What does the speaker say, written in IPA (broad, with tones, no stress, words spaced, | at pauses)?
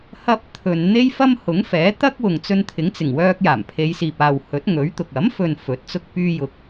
hɐ˧p̚ t̪ʰɵ˨nn̪e˥jfɐ˥m hʊ˨˥ŋfɛː˨˥t̪ɐ˥k̚wʊ˨ŋ t͡sɵ˧nt̪ʰɪ˨˥ŋt͡sɪ˨˩ŋwœː˧k̚ jaː˨˩mpʰe˨˧jsiː˨p̚aː˨w hɵ˨˥t̚ŋɵ˨˥ɥt̪ʊ˨k̚ ɐ˨˥mfɵ˨n fɵ˨˥t̚t͡sʊ˥k̚pyː˥jʊ˧k̚